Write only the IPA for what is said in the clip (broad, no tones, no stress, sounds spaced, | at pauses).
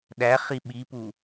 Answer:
ɗ æ χ i ɓ i p u